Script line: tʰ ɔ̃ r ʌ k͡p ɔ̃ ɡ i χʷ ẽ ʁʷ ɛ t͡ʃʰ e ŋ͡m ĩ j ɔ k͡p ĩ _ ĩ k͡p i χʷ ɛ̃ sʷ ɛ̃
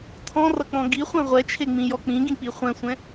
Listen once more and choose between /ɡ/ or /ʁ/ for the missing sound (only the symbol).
ɡ